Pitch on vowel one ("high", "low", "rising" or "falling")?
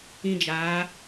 high